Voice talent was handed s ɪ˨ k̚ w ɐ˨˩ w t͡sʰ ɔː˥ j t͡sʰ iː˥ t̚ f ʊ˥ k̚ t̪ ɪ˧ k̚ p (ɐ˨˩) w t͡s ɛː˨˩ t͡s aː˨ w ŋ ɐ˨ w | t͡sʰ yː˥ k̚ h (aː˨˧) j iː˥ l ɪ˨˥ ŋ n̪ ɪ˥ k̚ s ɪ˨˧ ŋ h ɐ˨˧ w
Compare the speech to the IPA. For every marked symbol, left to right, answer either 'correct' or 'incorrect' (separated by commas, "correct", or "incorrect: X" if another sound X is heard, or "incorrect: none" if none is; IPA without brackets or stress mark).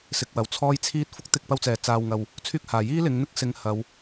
incorrect: ɐ˥, incorrect: aː˨˩